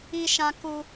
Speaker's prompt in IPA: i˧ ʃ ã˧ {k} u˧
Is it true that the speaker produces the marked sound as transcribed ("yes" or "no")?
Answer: yes